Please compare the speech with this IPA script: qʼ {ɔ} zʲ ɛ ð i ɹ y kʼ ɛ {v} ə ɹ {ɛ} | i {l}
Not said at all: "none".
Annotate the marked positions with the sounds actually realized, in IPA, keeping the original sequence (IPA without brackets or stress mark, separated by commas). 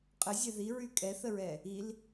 ə, θ, ɛ, l